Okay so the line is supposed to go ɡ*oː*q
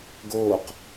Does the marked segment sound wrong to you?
no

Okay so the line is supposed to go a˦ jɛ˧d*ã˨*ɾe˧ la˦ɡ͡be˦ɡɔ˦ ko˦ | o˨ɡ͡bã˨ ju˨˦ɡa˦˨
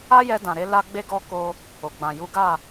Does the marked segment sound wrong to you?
no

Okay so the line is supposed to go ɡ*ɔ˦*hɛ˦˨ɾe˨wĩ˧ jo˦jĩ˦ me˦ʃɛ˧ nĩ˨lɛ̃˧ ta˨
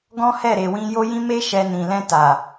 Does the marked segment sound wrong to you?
yes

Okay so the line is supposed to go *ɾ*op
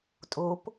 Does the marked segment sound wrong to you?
yes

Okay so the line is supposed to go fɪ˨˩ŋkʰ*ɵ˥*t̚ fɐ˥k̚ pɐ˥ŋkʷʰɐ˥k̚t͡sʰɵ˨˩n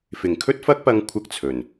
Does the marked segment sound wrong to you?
no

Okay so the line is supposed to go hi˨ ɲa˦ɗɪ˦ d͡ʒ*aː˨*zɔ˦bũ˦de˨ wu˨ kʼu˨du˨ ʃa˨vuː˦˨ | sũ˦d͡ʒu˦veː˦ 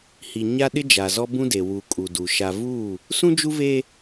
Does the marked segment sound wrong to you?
yes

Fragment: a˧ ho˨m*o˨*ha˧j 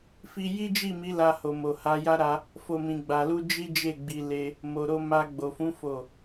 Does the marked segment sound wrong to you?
no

